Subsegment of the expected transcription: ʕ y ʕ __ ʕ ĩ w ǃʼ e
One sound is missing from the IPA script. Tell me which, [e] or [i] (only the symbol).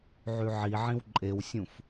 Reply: i